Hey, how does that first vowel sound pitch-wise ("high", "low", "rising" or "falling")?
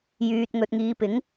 low